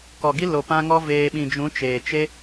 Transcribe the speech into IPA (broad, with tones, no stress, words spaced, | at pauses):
kɔ˨ɡi˦lo˨ pã˦ŋɔ˦veː˧ ɓĩ˨d͡ʒũ˨˦ t͡ʃeː˨t͡ʃe˦